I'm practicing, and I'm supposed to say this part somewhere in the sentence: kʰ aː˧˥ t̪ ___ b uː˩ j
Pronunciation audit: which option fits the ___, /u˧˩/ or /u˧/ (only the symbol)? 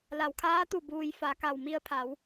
u˧˩